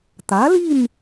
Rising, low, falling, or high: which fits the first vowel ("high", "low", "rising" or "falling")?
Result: rising